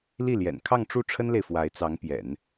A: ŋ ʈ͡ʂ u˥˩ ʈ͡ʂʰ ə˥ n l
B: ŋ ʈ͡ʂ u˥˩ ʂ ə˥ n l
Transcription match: A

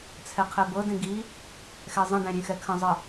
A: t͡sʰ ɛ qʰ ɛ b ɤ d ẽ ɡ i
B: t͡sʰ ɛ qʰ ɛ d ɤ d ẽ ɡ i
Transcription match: A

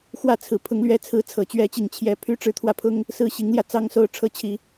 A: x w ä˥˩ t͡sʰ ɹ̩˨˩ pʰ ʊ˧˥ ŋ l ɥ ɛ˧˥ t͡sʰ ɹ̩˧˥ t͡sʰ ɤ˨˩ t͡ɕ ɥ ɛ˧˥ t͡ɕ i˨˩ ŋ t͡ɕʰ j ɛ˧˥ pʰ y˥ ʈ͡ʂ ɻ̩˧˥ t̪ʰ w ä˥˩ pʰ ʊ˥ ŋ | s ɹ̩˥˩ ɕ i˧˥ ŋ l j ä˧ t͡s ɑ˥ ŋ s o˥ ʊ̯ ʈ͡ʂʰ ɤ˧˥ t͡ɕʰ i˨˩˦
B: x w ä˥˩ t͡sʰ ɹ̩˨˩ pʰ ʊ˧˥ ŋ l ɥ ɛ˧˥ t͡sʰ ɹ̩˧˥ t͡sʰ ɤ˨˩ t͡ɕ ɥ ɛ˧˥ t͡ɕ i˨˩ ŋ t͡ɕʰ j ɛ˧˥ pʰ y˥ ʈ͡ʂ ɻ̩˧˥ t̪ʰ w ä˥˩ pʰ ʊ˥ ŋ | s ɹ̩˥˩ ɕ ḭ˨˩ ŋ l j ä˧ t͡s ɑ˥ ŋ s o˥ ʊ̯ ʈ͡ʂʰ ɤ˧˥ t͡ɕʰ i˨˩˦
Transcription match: A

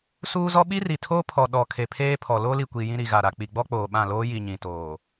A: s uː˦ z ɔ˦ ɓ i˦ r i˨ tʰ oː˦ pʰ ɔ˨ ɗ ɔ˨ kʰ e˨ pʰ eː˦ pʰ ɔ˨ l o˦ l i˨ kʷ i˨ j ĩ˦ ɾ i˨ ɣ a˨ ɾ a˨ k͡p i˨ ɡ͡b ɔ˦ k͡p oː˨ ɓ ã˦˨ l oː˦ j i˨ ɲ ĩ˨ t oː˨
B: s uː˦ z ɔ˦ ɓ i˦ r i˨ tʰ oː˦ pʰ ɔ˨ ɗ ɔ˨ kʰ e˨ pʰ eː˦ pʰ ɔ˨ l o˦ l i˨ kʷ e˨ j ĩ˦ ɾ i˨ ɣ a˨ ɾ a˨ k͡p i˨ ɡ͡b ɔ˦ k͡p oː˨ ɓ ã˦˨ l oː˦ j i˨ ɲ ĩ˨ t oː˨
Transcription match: A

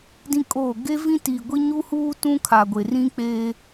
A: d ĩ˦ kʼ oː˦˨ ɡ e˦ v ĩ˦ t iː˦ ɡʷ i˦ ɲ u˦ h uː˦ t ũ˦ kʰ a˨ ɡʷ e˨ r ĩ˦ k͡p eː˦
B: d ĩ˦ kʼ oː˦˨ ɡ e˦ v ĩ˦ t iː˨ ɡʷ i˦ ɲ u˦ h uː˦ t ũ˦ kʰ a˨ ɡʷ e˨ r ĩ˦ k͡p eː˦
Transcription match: B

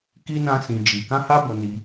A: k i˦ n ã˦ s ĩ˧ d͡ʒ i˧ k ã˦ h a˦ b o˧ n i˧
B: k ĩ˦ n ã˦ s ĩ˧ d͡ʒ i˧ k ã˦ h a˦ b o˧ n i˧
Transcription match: A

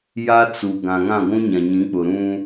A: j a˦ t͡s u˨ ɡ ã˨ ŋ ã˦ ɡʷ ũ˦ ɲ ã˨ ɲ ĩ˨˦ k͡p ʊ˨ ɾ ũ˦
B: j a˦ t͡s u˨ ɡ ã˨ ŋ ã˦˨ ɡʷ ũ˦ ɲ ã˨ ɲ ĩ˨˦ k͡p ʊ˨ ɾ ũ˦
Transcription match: B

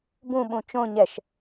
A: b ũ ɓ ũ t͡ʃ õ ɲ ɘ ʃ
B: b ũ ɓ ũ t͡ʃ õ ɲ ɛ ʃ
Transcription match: B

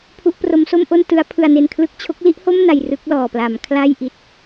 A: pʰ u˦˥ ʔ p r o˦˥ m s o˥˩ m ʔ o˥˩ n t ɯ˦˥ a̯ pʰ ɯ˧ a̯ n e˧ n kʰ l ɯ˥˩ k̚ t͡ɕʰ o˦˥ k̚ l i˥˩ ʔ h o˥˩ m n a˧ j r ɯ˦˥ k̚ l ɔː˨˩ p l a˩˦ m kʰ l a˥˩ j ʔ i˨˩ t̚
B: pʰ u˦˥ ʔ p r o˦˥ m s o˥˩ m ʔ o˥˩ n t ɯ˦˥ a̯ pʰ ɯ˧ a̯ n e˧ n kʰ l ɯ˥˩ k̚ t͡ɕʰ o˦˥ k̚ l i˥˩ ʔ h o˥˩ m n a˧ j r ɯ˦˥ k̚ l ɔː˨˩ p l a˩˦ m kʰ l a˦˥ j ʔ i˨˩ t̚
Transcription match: A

